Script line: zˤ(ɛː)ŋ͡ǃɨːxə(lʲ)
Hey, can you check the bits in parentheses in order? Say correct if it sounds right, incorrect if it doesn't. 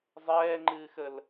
correct, incorrect: l

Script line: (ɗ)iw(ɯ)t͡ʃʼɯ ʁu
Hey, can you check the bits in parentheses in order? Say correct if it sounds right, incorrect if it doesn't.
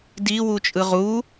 incorrect: d, incorrect: u

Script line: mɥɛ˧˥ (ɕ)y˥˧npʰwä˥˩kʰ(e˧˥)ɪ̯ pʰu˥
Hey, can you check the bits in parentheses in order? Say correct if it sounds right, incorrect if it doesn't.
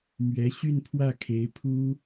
correct, correct

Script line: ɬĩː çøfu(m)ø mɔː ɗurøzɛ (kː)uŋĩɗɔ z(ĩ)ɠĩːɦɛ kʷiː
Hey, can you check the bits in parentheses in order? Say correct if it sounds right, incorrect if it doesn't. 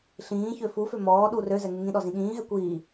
incorrect: f, incorrect: ŋ, correct

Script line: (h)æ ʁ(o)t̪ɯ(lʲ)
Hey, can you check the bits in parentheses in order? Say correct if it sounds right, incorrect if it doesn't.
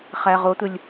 incorrect: χ, correct, correct

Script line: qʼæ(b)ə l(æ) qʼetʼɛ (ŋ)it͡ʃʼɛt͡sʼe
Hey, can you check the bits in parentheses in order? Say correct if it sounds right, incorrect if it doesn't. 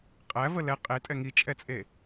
incorrect: v, incorrect: ɛ, correct

